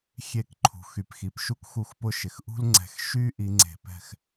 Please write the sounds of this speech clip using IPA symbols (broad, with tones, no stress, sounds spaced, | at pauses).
xʲ e˧˩˧ k ǃʰ ṳ˩ x y˩ p x i˩ p ʃ u˦ k x u˧˩˧ x p ʊ˦˨ ʃ ɪ˩ x ʔ ṳ˦ l ŋ͡ǀ ɛ̤˧˩˧ x ʃ y˦ ʔ i˨˦ ŋ͡ǀ e̤˧˩˧ p ɛ̤˦˨ x